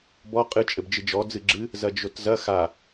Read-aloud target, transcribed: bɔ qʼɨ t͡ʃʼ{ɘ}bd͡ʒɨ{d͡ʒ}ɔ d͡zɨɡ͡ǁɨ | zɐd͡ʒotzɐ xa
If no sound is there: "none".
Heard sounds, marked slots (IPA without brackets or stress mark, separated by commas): ɘ, d͡ʒ